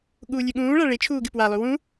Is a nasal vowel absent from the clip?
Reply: no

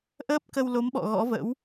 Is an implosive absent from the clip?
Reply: no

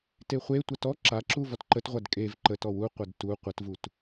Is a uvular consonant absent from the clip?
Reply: no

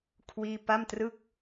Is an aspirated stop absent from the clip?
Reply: no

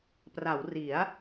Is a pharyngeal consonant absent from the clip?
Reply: yes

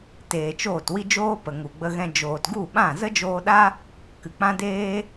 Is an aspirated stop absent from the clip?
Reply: yes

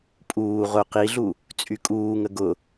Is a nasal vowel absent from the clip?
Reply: yes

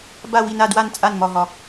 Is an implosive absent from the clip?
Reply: yes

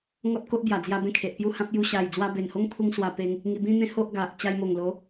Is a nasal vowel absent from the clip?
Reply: no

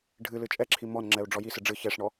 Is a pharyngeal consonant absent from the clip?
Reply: yes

